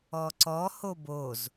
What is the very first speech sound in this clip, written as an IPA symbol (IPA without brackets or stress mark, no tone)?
ɔ